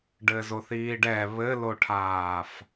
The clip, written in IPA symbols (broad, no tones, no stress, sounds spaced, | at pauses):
ɖ ɘ z o θ iː ɖ ɛ β ɘ l o ʈʰ aː f